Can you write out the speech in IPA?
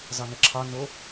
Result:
zɒnəǁʰɒ no

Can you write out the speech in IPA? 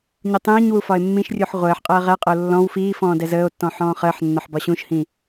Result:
ɲutˤĩːɲwu fɒe̯mːĩʃrʲuħ ʁʷəːħqʼəː ʁɛqʼəo̯ lːɔ̃w fiːfɔ̃ː dɛzəːo̯tːɔ̃ ħɔ̃ːχəːħnːɒħ bɒɕũʃhĩ

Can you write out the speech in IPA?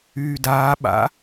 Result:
yːdaː ɓa̰

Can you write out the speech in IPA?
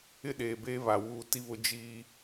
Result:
ɪ˦ɗeː˨beː˦ βa˨wuː˦ ti˦βʊ˦ d͡ʒiː˦

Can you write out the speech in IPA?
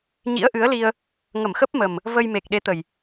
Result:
ɲḭ˧˥ə̯ʔɨ˨˦ə̯li˧ə̯ | ŋə˧˩mxə˦˥p̚mə˨˩m | və˧jme˨˩k̚ɗe˨˦t̪ə˨˩j

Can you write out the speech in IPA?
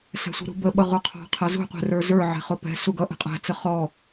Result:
sæ̤sʷi̤ɾṳbə ɓʌʁuqʰɑ̤ qʰɛzṳ qʷɛ̤rə˞zə˞ ʕɛ̤χʊpɛ̤ suɡʌ ʔɛ̤qʼæ̤ t͡səχɔ

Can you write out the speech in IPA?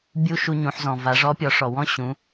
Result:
bʲu˧ ʃu˧ɲũ˩˧ħzɔ̃˩ va˩˧ʐɔ˧˥pʲɔ˩˧ ʂɔ˩wɔ̃˥ɕũ˩˧

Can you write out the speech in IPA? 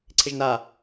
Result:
ǀʰɪʒna

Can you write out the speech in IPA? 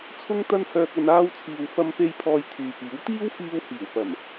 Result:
t͡sʰʊ˥ŋt̪ɐ˥nhœː˧k̚ɐ˧n aː˧wt͡sʰiː˨w fɐ˧mpe˧j pʰɔː˧jt̪ʰyː˨piː˨˥w t̪iː˥wfiː˧whiː˨˩wpɐ˨˩m

